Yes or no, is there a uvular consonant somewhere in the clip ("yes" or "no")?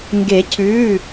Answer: no